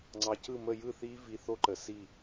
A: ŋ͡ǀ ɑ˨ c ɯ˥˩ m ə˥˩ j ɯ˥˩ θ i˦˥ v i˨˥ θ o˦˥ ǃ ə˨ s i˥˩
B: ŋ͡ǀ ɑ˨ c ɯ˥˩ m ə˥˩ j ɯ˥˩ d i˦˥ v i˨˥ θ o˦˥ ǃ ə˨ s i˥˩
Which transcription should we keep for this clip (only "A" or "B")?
A